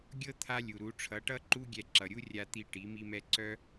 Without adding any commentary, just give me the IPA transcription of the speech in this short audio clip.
ɡʲ ɤ˦ t̪ʰ a˦ lʲ u˨ ɾ u˨˦ ʈ͡ʂʰ ʌ˨˦ ʈ ʌ˦ ǃ u˦ ɡʲ ɛ˧ ǁ ʌ˨ ɾʲ u˦ rʲ a˧ t̪ i˧ ʈ i˨˦ m i˦ m ɛ˦ ǀ œ˦

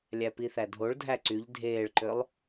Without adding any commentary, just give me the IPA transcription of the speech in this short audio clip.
lʲ æ p i θ æ dʱ o ɭ dʱ æ ǀ y ʎ dʱ eː ɭ ǃ ø lˠ

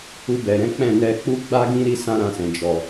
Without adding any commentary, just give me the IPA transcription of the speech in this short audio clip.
u˧ b ɛ˨ ɾ ɛ̃˨˦ k͡p ɛ̃˦˨ n ɛ˧ k͡p u˦ ɡ͡b a˦ ɡ ĩ˦ ɾ i˦ s ã˦ ɾ ã˧ s ɛ̃˨ d͡ʒ ɔ˨

